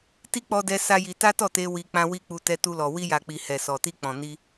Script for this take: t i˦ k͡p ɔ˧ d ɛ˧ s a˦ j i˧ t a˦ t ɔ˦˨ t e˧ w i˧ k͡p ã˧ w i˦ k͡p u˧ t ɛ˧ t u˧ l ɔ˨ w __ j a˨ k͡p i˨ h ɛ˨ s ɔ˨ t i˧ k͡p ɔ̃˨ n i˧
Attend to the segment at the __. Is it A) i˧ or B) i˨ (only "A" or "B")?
A